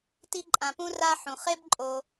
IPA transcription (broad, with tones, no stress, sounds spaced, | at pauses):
t i˦ ǃʼ ã˨ p ũ˥ r a˥ ħ ũ˩ χ e˥ b ǃʼ o˨